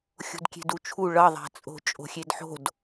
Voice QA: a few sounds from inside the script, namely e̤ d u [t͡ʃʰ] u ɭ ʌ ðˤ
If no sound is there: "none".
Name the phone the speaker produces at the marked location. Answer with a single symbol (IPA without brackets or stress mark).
t͡ʃʰ